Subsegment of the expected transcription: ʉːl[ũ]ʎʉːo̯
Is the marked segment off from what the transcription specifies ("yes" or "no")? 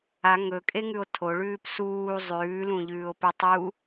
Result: no